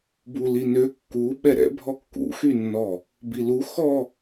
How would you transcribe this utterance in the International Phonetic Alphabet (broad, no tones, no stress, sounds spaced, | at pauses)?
b u l i n ø kː u ɓ ɛ ɾ ɛ̰ bʱ ɔ kː ṵ x y nː ɔ | b i l u x ɔ